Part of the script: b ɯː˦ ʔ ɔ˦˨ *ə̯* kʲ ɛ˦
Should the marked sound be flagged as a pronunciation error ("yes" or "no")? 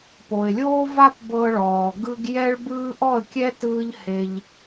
no